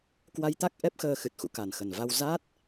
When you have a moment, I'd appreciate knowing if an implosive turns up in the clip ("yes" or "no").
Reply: no